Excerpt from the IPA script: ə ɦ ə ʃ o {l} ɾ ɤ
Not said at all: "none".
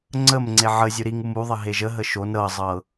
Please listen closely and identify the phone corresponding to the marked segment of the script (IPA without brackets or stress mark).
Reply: n